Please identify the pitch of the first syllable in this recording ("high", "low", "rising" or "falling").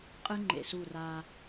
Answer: high